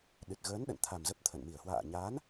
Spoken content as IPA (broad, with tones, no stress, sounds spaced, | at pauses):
ɗ ɨ˨˩ t̚ ɣ əː˨˦ n ɗ ə̰˧˨ n t̪ʰ a˨˩ m z ə˦˥ p̚ t̪ʰ ə̰˧˨ n m i˧˩ ə̯ h w a̰ː˧˨ ɲ aː˨˦ n